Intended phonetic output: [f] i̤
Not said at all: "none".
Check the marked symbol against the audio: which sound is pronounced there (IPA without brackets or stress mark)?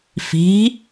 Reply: f